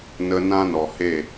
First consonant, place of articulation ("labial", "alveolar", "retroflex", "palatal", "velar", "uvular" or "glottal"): alveolar